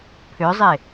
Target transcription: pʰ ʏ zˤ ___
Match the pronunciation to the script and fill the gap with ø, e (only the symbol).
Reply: e